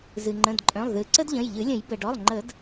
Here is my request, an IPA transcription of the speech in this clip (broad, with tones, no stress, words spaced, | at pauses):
zɨ˩ŋ͡ǃə̃˩˧˩dǃʼœ̃˩˧˩lˠ ðɨ˨˩˦ ǀə˥dʎə̃˩˧˩jʎɨ˨˩˦lʲə̃˨˩˦j bə˩ɖɔ˩˧˩lˠŋ͡ǃə˨˩˦d